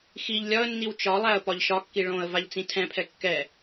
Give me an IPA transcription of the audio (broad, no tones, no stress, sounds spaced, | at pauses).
x i ʎ lʲ ɒ ə̯ nː i w t͡ʃ ɒ lˠ æ ə̯ p ɒ ʎ ʃ ɒ kː i ɭ õ ə̯ v a ʎ t͡s ĩ tʰ ɛ̃ pʰ ɛ kː ɛ